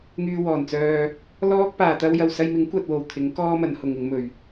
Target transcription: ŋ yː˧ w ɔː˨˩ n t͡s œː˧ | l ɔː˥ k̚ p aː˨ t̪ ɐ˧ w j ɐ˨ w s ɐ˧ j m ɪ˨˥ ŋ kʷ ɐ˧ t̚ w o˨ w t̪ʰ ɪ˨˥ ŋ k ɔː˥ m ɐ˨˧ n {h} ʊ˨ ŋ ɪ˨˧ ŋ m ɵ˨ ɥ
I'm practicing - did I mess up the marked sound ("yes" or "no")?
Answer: no